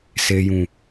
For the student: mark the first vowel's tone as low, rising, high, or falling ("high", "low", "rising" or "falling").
low